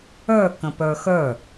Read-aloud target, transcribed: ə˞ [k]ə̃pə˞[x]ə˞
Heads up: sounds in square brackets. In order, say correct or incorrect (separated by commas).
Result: correct, correct